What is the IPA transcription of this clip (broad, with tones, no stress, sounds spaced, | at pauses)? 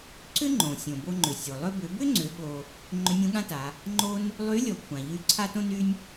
ǀ ʏ˥ ŋ͡ǃ õ˩ sʲ õ˩ b o˧ ŋ͡ǃ ʏ˩ sʲ o˩ lˠ ʏ˧ b ʏ˩˧ b ʏ˥ ŋ͡ǀ ʏ˩˧ ɠ o˧ | ŋ͡ǃ ʏ˧˥ nʲ õ˧˥ ɠ ã˥ t a˩˧ | ŋ͡ǃ o˥ n | lˠ y˧˥ lʲ ɔ˩˧ kʷʰ ã˩ ʎ y˧ ǀʰ a˥ t õ˥ n y˥ nʲ